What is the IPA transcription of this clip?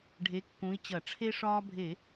ɖʱ e˨˥ kː ũ˨˥ i̯ t͡ɕ ɐ˧˩˧ ʈ͡ʂʰ e˦ ʂ ɒː˦ bʱ e˧˩˧

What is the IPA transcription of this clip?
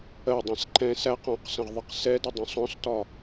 ɜ dˤ æ̃ s ǃ ɛ̃ s æ q ɔ̃ q s ə̃ ʁ ðˤ ɪ q s ɛ d ə dˤ ũ sˤ ɔ̃ s t ɒ

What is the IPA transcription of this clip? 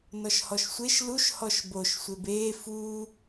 n ɔ ʃ h ɔ ʃ sʷ e ʃ l u ʃ h ɔ ʃ b o ʃ sʷ e b eː f uː

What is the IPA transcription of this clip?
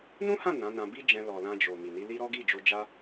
n ũ˦ h ã˦˨ n ã˨˦ n ã˧ b i˦ d͡ʒ ɛ̃˧ l ɔ˨ l ã˧ d͡ʒ o˨ m i˨ n i˨˦ l i˦ ɾ ɔ˦ ɡ i˦˨ d͡ʒ o˧ d͡ʒ a˦

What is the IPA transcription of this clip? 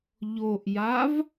ʎ o ʔ j a v

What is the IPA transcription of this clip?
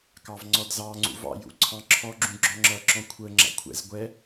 k ɑ v ŋ͡ǀ ɔ d z ɑ ŋ͡ǀ ṵ v ɑ̰ j ṵ ǀʰ ɑ̃ ǁʰ ɔ ɡ͡ǁ ũ ɡ͡ǁ ɔ̃ ŋ͡ǁ ʌ ǁ ɔ̃ kʷʰ ə ŋ͡ǁ a̰ kʷʰ ɛ̰ z ɡʷ ɛ

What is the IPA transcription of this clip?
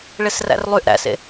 ɭ e s r æ̰ r lˠ y ʔ ɾ æ̰ s ḛ

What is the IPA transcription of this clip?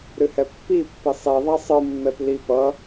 ɾ ɨ h ɛ pː i pː i sˤ i ðˤ a sˤ ɯ mː ɛ p l i p ʌ

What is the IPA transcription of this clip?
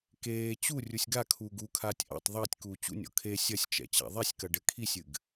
k eː t͡ɕ u rʲ u sʲ ɡ a kʰ uː ɡ u kʰ aː tʲ ʔ a̰ tˤ ðˤ ɐː tʲ k uː t͡ɕ ṵ nʲ ɔ̰ kʰ e sʲ ɐ sʲ t͡ʃ ɛ̰ t͡ɕ a̰ ðˤ ɛ sʲ k ɐ ɖ ɘ kʰ i sʲ ɨ ɡ

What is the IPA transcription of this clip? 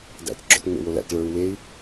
d æ̰ t ɡ͡ǁ ɔ̰ t ŋ͡m ḛ w o l æ̰ t ɭ ə˞ u̯ w e i̯

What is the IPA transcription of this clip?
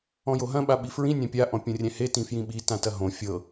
ɔ̃ j o ɦ ɐ̃ ɓ a ɓ i f ɹ ĩ nʲ ã pʲ a ʔ ɔ̃ pʲ õ rʲ ɛ̃ h e t ĩ f j ĩ ɓ i t ã t ɐ ɦ õ fʲ ɤ

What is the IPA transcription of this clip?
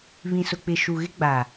β ĩ˨ s ʊ˨ k͡p ɪ˨ ʃ u˨ ɣ ɪ˦ ɡ͡b a˨

